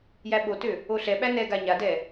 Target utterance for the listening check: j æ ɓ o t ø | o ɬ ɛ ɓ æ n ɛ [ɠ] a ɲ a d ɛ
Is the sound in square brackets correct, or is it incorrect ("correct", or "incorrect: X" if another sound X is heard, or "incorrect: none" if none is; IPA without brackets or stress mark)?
incorrect: ɡ